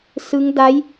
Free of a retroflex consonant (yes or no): yes